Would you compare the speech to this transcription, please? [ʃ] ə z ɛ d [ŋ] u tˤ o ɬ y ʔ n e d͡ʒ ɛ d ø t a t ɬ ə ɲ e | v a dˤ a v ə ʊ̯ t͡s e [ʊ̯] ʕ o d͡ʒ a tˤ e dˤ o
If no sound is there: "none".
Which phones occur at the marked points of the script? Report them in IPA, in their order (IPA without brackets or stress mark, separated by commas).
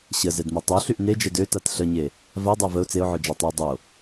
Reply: ɕ, m, ʊ̯